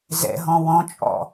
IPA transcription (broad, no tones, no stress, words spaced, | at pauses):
zɛ̰ɦɔ̃ wɔ̃t͡ʃʼɔ̰